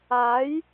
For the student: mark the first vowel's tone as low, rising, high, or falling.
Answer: rising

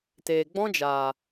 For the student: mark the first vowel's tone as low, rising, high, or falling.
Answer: low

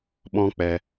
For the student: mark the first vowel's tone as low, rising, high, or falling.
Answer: high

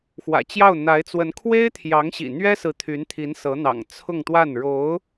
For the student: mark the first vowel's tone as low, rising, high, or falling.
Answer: low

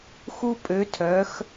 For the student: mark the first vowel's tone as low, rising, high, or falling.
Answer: high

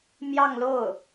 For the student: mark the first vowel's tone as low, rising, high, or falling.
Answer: falling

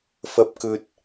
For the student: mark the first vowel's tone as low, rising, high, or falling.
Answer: low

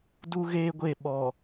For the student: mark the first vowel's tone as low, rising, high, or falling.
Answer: high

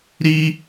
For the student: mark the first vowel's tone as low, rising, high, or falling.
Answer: high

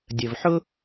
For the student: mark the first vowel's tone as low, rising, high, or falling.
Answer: low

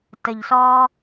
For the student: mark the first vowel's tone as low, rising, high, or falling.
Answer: low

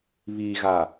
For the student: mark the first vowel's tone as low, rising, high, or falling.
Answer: low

